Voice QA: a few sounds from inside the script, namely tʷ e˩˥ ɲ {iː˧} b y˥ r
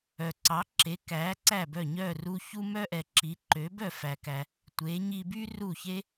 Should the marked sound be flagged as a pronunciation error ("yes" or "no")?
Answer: yes